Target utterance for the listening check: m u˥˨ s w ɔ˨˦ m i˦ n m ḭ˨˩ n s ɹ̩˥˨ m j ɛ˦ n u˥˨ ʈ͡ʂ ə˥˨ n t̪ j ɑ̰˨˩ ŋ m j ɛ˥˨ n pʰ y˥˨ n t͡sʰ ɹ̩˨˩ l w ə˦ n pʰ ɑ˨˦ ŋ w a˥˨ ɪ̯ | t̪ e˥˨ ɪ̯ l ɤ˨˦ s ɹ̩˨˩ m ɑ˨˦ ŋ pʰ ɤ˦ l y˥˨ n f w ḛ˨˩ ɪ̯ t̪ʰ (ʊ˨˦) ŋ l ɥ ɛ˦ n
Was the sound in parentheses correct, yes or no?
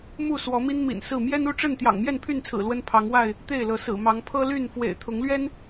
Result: yes